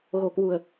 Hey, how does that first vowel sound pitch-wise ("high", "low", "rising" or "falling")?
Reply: low